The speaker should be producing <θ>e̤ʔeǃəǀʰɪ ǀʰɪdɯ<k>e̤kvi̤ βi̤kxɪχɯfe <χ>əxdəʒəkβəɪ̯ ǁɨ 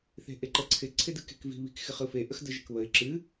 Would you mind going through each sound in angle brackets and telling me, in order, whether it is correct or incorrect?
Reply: correct, correct, incorrect: ʔ

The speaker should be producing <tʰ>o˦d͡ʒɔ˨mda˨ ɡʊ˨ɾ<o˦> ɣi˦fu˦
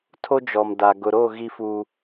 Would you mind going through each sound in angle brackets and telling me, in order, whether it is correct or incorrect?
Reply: correct, incorrect: o˦˨

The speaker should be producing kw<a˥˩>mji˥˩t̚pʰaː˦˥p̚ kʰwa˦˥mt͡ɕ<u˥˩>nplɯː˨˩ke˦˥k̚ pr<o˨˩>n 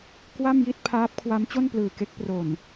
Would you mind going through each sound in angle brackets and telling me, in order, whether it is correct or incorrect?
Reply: correct, incorrect: o˥˩, correct

